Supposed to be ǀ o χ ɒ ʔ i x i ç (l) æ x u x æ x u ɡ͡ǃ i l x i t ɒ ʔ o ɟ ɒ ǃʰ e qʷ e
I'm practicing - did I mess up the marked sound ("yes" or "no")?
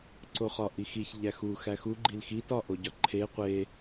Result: yes